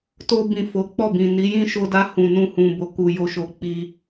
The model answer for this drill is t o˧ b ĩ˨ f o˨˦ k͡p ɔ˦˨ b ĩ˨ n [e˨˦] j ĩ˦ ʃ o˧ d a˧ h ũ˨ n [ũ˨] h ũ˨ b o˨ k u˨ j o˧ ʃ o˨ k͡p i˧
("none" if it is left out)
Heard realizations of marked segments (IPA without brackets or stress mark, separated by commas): i˨˦, ũ˧